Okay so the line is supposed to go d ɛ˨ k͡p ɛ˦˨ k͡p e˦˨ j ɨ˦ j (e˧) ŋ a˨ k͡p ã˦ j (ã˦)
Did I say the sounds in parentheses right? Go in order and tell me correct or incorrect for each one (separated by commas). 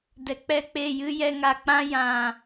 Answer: incorrect, incorrect